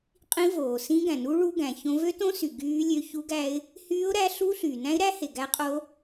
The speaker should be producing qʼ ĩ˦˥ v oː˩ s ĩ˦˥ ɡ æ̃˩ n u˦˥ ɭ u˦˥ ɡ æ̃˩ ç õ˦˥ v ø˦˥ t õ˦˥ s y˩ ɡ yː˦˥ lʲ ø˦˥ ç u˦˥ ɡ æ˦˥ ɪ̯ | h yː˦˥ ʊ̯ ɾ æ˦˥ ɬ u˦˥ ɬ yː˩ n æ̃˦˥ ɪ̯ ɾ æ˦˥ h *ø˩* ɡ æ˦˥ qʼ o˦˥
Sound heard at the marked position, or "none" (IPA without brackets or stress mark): e˩